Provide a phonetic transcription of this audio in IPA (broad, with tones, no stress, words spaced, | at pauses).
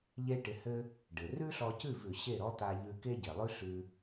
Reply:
ʎe˥ʈɪ˧hɘ˥ | ɖɘ˩rʉ˥ɬɔ˧cʉ˥˩v ʉ˩ɕe˥˩ ɾɔ˥t̪a˧ ʎʉ˧ ke˥ɟe˩lˠʉ˥ɬʉ˧